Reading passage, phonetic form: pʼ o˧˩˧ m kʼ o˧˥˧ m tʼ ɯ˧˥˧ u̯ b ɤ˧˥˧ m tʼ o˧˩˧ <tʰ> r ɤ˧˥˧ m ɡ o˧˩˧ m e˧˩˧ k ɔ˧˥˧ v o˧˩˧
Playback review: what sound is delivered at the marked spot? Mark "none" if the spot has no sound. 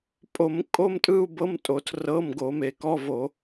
tʰ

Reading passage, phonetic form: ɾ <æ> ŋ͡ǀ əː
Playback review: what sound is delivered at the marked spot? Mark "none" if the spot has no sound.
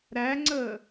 æ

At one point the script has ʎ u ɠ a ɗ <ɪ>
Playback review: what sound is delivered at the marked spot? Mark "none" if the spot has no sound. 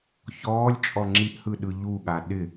ɪ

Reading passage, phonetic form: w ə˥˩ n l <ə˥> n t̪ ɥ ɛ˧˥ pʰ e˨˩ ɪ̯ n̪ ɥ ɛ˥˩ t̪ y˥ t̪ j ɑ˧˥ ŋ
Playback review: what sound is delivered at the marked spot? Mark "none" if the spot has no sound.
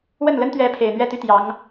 ə˥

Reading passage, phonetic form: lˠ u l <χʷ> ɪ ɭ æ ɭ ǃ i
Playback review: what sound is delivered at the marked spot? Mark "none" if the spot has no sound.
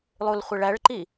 χʷ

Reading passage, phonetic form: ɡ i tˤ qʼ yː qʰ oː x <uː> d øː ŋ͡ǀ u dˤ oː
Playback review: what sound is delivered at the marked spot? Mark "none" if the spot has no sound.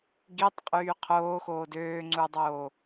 oː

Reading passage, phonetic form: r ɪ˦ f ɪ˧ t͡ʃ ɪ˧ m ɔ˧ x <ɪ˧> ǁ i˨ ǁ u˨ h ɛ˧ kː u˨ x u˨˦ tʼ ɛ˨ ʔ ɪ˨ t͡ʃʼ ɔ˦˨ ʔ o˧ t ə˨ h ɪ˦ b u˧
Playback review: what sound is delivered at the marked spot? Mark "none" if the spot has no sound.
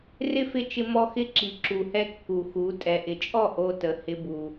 ɪ˦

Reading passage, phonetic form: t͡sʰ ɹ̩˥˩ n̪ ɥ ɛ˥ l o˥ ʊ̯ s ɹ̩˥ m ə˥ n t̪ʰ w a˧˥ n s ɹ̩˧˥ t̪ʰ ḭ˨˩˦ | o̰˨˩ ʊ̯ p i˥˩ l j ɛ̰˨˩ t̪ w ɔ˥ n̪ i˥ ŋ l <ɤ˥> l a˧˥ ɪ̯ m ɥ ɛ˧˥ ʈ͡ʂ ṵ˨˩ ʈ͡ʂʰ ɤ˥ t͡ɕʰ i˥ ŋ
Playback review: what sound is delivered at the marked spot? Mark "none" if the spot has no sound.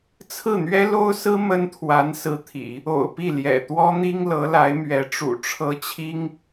ɤ˧˥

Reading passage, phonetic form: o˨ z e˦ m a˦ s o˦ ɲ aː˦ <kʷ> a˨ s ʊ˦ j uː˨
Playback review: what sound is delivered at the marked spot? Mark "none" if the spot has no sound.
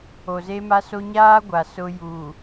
ɡʷ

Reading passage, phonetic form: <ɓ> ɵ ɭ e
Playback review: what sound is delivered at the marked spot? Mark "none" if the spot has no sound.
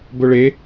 b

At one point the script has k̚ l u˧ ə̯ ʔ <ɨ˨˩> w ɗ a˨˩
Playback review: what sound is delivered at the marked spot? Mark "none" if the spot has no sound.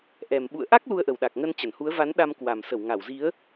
ə˨˩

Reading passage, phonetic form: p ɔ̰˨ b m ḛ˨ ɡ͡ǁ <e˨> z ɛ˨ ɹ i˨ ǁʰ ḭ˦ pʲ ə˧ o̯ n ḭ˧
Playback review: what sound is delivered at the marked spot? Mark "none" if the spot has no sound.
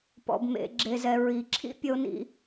e˨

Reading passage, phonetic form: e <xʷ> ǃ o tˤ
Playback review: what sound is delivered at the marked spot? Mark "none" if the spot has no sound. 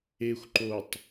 xʷ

